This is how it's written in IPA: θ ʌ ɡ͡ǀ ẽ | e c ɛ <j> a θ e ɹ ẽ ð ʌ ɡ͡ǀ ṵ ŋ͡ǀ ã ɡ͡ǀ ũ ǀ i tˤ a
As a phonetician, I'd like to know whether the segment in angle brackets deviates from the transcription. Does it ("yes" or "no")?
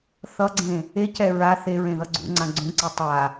yes